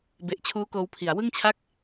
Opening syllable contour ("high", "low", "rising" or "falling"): low